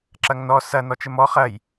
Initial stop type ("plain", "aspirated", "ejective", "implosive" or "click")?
click